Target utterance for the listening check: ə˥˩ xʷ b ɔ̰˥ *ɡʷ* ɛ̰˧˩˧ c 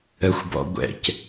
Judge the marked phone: correct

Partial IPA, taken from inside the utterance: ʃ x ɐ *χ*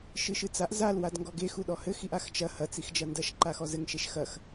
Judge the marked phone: incorrect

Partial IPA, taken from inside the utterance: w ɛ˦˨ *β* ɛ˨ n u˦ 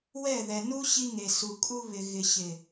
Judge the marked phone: incorrect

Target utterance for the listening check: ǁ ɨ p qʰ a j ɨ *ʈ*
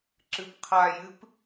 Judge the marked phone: incorrect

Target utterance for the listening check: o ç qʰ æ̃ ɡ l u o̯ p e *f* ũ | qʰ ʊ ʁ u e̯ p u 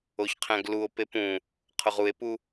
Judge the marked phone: incorrect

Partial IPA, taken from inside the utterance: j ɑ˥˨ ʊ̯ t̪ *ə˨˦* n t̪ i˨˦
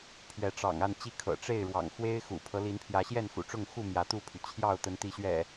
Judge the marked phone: correct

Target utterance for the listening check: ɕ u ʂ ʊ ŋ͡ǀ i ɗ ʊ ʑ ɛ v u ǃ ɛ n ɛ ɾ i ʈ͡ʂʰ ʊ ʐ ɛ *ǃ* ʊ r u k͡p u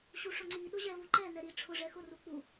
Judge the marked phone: incorrect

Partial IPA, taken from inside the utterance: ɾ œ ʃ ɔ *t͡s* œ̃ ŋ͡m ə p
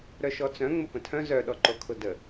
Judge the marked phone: correct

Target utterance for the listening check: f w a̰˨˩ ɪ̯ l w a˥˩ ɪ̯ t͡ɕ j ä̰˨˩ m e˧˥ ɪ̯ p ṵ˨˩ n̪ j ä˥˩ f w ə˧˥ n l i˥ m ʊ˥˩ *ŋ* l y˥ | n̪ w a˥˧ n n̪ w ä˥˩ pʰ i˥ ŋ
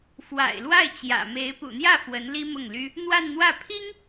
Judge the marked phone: correct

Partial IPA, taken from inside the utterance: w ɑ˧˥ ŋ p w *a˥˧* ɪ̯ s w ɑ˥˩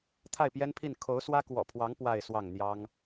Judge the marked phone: correct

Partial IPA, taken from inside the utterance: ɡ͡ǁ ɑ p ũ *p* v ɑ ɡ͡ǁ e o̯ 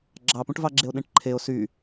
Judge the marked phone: incorrect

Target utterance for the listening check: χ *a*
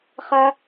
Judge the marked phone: correct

